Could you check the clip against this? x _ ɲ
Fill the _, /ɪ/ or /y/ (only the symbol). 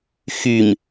y